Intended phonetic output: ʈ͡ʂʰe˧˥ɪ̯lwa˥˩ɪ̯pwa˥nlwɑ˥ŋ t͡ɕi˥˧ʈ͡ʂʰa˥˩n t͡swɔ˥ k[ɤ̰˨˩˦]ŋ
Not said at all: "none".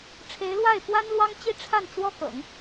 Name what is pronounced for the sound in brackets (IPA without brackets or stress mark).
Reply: ɤ̰˨˩˦